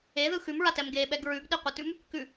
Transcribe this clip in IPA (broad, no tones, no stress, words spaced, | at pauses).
eðɯ xʉmɹatɛm ɡeɓɛɡ ɹʉɡɗiqʷatʉm | kʉ